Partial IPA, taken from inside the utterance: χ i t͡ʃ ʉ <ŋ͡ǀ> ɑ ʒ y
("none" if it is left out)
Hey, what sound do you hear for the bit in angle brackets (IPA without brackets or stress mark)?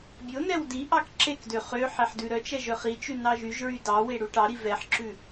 n